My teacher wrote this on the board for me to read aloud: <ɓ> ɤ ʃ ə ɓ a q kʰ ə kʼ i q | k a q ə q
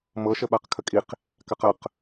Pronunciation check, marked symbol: incorrect: m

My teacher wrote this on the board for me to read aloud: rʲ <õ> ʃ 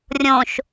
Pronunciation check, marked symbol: correct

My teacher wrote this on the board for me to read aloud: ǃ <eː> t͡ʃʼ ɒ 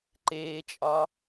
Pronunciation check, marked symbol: correct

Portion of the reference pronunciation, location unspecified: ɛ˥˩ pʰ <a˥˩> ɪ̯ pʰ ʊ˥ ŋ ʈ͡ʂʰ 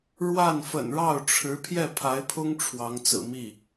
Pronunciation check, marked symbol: incorrect: a˧˥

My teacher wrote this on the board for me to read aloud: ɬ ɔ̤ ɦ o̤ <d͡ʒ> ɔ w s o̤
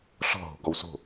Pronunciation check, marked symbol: incorrect: ɡ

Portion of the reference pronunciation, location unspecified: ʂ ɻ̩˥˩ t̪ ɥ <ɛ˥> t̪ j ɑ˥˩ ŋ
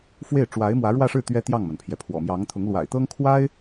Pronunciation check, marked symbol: correct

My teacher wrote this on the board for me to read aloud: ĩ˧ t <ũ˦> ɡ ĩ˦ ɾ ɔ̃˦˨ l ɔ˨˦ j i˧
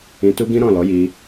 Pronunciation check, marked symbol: incorrect: u˦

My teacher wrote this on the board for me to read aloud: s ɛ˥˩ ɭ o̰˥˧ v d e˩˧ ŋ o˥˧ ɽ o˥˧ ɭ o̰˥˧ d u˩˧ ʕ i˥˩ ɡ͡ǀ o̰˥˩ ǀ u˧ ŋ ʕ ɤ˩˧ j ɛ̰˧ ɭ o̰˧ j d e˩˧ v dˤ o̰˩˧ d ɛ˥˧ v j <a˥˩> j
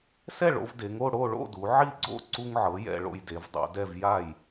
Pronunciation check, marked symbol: correct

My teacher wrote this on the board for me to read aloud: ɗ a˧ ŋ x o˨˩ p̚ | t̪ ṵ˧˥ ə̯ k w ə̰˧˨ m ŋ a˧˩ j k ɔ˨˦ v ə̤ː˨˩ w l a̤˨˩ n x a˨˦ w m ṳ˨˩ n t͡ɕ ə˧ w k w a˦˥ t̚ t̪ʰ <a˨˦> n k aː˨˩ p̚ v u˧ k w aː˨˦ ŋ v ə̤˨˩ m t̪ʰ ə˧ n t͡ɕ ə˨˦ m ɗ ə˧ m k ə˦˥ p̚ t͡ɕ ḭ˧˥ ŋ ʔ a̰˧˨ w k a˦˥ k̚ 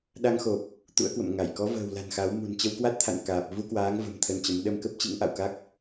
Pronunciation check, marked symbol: incorrect: a̰˧˨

